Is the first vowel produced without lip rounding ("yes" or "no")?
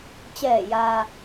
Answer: yes